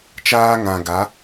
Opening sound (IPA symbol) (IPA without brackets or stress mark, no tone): t͡ʃ